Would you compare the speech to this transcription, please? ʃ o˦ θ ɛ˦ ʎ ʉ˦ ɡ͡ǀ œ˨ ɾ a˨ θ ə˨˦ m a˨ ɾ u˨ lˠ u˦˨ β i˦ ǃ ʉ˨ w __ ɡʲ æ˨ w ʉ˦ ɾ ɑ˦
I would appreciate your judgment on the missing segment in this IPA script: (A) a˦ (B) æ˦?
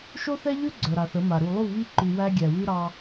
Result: B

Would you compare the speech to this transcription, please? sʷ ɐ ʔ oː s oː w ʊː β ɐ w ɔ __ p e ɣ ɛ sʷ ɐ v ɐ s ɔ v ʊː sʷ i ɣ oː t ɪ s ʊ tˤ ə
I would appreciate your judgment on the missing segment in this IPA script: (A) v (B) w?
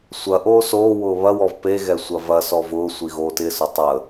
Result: A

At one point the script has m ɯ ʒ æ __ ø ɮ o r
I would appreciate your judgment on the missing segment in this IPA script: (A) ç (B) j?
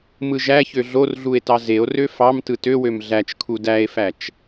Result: A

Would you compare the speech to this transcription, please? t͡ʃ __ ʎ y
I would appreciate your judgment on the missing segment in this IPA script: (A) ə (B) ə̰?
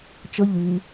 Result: A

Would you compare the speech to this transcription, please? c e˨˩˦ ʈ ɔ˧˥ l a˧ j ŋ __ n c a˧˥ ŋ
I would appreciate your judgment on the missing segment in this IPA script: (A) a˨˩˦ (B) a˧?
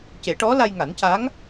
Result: A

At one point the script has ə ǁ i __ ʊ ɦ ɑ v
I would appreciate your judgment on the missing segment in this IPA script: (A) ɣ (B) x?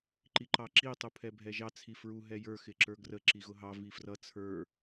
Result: A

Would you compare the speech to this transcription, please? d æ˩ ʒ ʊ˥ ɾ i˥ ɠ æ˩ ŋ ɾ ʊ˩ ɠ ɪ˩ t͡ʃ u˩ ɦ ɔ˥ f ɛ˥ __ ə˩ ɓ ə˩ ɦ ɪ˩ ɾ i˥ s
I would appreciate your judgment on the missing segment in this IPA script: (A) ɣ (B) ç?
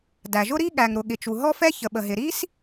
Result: B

